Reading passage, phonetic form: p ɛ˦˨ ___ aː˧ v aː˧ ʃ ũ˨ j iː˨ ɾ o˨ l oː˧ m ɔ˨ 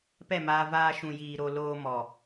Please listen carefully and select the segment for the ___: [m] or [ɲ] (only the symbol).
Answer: m